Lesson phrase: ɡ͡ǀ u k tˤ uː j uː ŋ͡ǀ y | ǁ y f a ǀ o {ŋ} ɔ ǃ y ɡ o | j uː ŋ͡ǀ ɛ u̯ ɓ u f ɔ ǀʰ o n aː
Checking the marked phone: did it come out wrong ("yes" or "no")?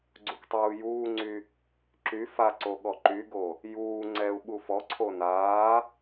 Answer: yes